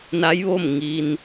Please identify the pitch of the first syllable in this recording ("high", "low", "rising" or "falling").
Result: rising